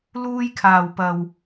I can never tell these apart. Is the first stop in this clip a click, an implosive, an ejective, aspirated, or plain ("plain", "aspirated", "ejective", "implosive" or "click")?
aspirated